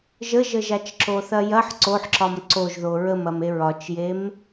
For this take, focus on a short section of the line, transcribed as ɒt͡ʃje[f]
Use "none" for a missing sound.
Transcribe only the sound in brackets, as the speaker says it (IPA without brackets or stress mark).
m